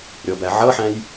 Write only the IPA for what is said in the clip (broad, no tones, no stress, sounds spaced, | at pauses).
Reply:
ɾʲ ɔ b æ ʕ ʌ ħ æ̃ j